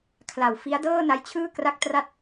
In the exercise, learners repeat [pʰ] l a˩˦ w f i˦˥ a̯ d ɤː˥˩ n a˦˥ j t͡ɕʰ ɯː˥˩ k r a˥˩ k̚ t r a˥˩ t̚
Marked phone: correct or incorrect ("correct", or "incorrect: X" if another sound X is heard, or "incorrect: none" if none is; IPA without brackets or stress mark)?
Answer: incorrect: kʰ